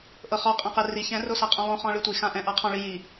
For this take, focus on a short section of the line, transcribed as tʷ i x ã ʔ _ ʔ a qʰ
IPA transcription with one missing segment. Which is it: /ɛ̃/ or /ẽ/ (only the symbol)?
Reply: ɛ̃